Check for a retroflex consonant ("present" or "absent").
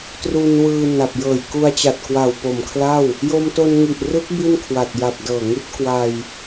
absent